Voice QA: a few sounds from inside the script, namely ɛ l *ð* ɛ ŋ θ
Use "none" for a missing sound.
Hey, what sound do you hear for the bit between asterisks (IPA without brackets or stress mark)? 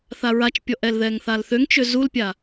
ð